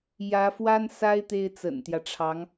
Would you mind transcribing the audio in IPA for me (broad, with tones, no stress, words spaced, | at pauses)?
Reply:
jä˧˥fwa˥n sa˥ɪ̯ t̪e˥ɪ̯t͡sə̰˨˩nt̪jä˦ʈ͡ʂʰɑ˧˥ŋ